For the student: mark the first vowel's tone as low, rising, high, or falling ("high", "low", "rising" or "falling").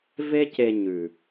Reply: high